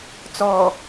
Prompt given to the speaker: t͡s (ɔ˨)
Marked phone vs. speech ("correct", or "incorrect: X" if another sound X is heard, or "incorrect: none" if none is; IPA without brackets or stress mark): correct